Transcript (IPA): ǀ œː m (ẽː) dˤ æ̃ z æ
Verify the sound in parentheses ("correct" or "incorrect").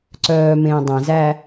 correct